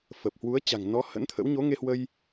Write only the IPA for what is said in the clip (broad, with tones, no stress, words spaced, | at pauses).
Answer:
fə˨˩p̚ hwu˨˦ə̯t͡ɕa̤˨˩ŋ nɔ˨˦ hə̰˧˥nt̪ʰə̰˧˥w ɲo˨˦ŋe˧hwə˧j